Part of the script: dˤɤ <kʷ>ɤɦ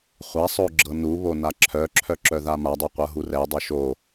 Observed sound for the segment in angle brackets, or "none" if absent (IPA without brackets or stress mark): qʷ